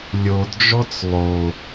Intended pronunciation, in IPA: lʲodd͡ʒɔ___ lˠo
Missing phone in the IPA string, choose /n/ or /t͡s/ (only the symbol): t͡s